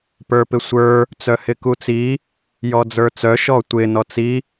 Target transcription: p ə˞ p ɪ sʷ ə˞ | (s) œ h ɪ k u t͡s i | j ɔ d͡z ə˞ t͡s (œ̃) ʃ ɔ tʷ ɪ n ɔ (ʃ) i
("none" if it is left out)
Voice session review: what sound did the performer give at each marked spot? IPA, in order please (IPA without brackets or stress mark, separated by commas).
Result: t͡s, œ, t͡s